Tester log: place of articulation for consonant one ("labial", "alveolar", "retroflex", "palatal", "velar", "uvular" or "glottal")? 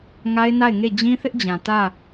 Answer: velar